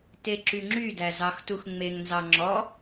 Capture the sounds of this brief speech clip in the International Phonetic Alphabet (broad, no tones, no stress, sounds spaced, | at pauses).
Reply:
t e ǁ y ŋ͡ǁ y d æ z ɑ x t u x ŋ͡m e ŋ n z ɑ ŋ͡ǁ ɔ